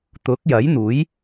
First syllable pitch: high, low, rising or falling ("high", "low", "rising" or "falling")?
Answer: rising